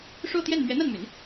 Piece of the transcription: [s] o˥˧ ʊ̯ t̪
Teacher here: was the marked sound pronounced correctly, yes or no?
no